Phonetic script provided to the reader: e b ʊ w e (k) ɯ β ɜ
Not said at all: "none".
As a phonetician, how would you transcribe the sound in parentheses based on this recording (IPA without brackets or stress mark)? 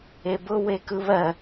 k